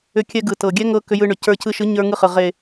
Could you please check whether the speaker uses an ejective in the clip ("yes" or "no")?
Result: no